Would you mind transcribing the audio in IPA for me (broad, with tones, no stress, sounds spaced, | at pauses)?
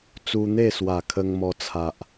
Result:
t͡s u˧ n̪ e˥˧ s w a˨˩ kʰ ə˧ ŋ m ɔ˧ t͡sʰ a˨ ʔ